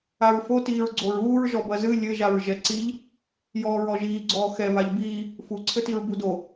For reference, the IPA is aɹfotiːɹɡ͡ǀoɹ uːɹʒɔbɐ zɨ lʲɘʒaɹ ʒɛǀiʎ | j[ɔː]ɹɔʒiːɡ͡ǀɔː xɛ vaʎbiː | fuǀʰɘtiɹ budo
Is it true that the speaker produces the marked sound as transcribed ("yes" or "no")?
yes